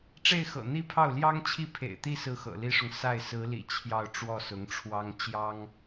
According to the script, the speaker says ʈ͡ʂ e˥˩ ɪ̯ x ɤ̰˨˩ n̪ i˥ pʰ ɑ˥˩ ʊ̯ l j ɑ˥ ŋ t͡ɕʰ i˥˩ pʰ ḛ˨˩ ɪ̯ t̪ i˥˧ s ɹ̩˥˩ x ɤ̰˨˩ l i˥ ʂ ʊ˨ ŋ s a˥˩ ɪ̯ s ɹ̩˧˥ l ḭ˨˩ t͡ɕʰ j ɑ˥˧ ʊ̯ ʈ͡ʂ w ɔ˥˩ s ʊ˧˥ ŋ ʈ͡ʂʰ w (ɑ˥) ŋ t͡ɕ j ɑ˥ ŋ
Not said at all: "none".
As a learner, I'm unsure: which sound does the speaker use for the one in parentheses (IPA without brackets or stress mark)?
ɑ˥